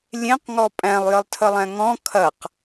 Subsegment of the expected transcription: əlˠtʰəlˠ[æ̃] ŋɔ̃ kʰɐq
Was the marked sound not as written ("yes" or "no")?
no